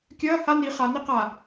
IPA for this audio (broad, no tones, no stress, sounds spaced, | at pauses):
kʲ ɐː h a n i χ a n i q a